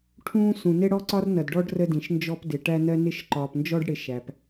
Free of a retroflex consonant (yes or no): no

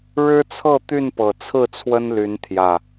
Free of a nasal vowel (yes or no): yes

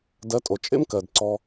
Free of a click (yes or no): no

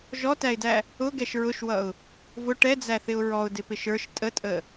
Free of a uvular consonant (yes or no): yes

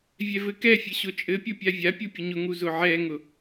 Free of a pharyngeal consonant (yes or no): no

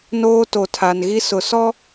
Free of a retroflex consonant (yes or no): yes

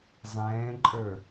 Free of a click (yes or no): no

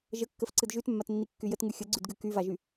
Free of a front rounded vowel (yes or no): no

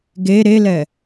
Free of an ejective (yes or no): yes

